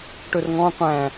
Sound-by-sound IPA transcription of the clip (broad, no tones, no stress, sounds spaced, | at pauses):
ʈ ɵ r ŋ ɔ̃ qʷ æ̃